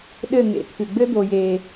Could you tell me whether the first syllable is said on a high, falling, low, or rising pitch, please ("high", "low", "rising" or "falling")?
falling